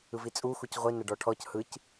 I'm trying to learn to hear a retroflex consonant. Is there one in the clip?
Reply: yes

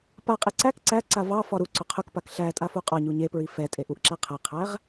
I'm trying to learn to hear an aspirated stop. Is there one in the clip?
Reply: yes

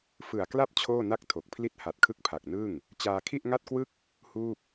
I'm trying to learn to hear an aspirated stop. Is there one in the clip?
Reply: yes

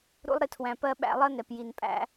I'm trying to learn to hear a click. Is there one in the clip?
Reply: no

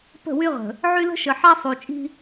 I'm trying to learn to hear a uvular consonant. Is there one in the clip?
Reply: yes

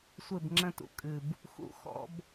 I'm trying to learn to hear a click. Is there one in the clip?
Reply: yes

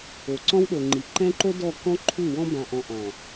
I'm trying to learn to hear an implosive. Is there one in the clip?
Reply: yes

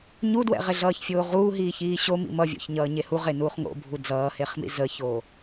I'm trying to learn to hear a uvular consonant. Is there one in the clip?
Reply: yes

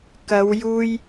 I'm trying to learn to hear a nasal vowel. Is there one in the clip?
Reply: no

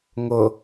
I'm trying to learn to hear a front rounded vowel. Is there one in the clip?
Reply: no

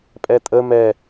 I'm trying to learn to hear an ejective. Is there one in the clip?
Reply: yes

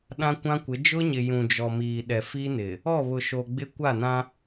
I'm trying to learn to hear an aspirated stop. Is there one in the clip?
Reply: no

